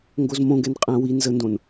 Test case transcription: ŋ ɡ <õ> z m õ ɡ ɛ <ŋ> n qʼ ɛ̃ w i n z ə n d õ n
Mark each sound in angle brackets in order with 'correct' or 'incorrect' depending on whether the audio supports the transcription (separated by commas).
incorrect, incorrect